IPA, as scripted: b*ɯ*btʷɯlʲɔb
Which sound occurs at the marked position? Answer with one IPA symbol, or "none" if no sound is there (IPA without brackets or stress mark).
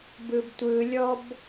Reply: ɯ